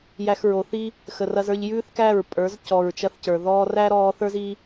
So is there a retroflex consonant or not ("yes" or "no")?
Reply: no